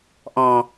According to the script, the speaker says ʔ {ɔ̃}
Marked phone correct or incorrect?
correct